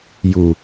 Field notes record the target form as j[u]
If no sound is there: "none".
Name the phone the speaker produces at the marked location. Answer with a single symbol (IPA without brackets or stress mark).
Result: u